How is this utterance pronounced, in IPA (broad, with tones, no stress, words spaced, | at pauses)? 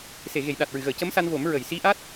se˨˩˨ɣe˨˩˨jɗa˨˩t̚ ɹɨ˨˩˨ɣəː˨˩˨cə˧˥msa˧n vo˨˩˦m ɹə˨˩˨jsi˧˥ʔa˦˥t̚